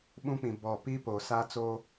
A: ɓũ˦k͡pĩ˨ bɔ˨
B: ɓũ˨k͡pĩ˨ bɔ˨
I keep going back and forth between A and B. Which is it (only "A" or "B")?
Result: A